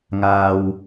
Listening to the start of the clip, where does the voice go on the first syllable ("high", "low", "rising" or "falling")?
low